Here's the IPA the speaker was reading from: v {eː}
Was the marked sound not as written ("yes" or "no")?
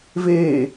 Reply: no